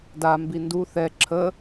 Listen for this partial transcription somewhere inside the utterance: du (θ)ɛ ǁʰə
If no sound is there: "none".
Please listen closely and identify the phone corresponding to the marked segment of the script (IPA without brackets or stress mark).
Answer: θ